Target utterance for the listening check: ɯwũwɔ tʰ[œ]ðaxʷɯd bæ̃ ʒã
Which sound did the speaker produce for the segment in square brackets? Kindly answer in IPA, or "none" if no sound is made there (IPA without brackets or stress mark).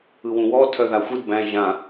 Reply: œ